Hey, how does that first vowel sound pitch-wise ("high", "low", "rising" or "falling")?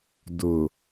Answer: low